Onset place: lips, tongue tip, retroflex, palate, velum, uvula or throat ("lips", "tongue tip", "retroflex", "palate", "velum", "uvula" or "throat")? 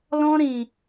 tongue tip